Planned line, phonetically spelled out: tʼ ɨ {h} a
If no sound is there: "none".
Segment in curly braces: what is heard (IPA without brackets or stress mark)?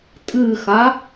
x